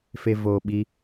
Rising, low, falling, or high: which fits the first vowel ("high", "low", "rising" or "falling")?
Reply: low